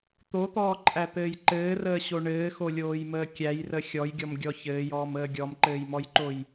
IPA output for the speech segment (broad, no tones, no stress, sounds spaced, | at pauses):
t̪ o t̪ ɔː ǃʼ æ t̪ ɘː j ǃ ɘː r əː ɕ o ɳ ɘː x o lʲ oː j m əː kʲ æ j r ə xʲ ɔ j ɡʲ ɔ m ɡʲ ɔ ç ɘː j ɔː m əː ɡʲ ɔ m ǃ ɘː j m ɔ j ǃ o j